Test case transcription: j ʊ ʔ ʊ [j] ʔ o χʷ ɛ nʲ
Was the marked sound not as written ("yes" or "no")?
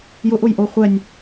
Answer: no